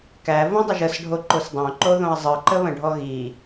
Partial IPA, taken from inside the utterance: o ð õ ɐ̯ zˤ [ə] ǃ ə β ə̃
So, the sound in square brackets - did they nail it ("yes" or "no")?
no